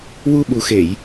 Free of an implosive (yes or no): no